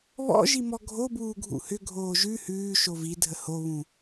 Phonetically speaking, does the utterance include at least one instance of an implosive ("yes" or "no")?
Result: no